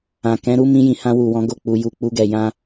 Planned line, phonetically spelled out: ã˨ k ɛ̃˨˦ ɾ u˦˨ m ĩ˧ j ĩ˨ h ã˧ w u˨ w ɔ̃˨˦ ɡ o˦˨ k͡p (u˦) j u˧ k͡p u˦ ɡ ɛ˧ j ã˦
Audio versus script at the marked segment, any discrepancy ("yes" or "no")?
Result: yes